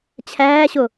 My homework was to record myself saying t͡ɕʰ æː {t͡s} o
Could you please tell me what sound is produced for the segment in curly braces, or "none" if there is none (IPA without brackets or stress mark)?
ɕ